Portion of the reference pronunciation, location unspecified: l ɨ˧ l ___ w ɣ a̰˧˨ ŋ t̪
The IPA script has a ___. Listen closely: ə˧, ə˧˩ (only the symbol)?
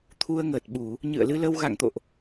ə˧